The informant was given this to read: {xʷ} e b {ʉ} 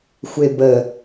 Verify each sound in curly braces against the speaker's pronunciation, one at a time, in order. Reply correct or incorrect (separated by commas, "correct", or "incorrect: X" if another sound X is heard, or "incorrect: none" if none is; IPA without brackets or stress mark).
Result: correct, incorrect: ə